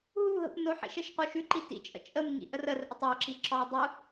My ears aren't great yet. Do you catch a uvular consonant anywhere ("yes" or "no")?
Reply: yes